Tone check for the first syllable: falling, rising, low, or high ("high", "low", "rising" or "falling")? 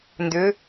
rising